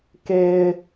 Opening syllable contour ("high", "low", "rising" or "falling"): high